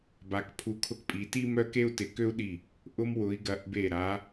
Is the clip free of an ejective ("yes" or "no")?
no